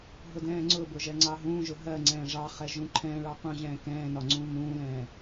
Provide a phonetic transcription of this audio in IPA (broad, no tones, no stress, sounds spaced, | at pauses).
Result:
ɦ ʊ d ɛ̃ː ŋ͡ǀ ʊ b ʊ ʒ ɛ ŋ͡ǀ ɑ ɦ ũː ʒ ʊ ɦ ɜ ŋ͡ǀ ɛ̃ː ʐ ɑ χ ɛ ʒ ũ ǃʰ ɛ̃ ɭ ɑ q ũ ʑ ɛ̃ː k ɛ̃ː n ɒ ŋ͡ǀ ũː m ũː l ɛ̃ː